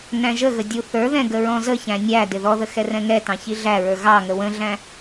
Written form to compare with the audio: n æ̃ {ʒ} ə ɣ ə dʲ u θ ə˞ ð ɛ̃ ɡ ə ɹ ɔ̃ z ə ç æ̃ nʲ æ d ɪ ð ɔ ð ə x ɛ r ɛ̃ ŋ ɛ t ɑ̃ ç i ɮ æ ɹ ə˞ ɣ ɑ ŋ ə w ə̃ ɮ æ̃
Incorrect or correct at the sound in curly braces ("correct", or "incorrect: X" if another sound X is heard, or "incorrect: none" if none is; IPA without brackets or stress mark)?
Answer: correct